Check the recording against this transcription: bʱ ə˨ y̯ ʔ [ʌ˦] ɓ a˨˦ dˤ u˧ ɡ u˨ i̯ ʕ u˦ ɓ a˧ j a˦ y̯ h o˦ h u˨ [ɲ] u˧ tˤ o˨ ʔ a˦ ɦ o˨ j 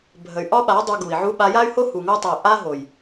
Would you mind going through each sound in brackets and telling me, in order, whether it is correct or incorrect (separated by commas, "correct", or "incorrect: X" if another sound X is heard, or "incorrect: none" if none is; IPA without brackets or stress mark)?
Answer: incorrect: ɒ˦, incorrect: ŋ